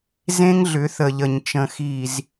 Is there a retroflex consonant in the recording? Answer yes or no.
no